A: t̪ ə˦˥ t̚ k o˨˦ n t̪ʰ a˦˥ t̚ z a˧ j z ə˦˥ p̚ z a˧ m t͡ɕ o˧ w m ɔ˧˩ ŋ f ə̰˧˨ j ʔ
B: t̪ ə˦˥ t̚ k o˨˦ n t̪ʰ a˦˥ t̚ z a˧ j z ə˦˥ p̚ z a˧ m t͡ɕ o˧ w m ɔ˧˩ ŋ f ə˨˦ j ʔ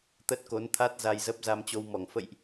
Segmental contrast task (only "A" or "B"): A